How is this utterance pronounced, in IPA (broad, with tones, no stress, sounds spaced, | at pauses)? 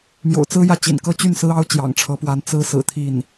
m j o̰˨˩ ʊ̯ t͡s ɹ̩˥ j ä˥˩ t͡ɕ ḭ˨˩ n k ɤ˥˧ t͡ɕ y˥˩ n s ɹ̩˥ ɑ˥ ʊ̯ t͡ɕ j ɑ̰˨˩ ŋ ʈ͡ʂʰ ɤ˧˥ p w a˧˥ n t͡s ɹ̩˥ s ɹ̩˨˩ t̪ʰ i˥˩ n